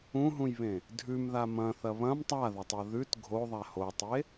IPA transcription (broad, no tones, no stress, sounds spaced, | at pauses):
ũ ɦ ũ j β ẽ | dʱ ʉ m ð a m ɐ̃ θ ɐ β ɐ̃ m tˤ a ð ɐ tˤ o ð ʉ t ɡʱ o ðˤ a h o tˤ e